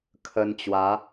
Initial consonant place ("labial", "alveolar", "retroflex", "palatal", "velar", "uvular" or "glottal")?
velar